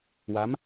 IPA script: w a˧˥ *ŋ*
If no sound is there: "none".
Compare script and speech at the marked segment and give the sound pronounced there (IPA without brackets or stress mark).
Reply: m